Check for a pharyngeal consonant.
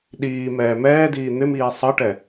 absent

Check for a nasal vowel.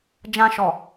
present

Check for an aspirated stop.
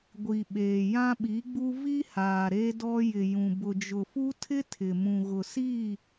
present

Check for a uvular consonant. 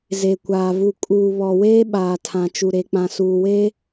absent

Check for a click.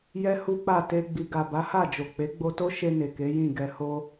absent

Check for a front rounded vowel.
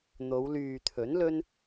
present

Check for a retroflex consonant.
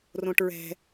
present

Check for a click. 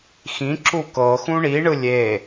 present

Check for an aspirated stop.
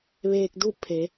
present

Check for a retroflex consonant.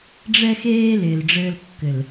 present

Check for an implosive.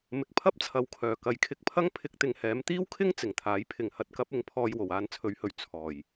absent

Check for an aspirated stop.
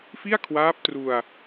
present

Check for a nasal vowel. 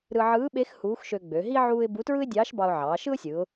absent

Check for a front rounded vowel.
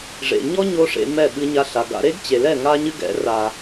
absent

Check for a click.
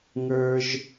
absent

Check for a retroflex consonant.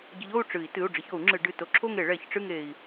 present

